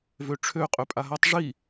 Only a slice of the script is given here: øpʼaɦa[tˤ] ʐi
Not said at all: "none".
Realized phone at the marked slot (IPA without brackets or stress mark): tˤ